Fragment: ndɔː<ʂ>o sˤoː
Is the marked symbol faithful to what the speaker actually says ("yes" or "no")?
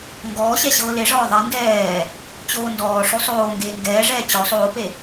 yes